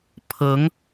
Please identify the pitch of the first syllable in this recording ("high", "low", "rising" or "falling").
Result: rising